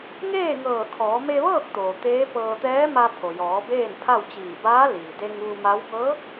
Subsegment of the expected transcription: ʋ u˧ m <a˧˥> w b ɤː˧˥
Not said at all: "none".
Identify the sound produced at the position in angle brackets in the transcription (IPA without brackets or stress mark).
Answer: a˧˥